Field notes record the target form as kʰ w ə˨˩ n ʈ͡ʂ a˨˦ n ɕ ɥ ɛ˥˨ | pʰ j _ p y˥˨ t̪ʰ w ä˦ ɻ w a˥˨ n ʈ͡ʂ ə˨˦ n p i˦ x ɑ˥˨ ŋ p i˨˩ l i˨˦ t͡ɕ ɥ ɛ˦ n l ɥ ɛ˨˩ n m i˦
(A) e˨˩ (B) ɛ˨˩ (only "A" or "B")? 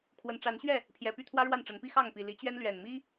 B